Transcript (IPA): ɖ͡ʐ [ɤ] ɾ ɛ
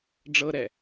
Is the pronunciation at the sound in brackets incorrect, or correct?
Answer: correct